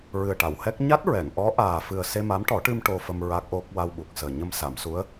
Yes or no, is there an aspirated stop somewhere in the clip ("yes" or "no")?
no